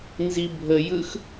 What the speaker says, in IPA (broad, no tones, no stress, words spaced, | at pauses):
nzibʱəjɯx